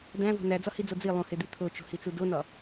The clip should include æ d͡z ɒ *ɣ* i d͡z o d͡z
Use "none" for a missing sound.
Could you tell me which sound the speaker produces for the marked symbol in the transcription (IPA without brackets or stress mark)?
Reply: h